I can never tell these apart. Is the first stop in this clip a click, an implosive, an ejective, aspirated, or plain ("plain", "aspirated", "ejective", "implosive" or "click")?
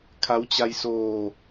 aspirated